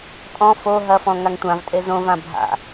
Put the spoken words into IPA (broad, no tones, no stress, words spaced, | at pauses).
tʼɔ̃ fo ɦɐfɔ̃ ŋaŋtʷãvtʼe zõvã bʱa̰